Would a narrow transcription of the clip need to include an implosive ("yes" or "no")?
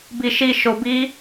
no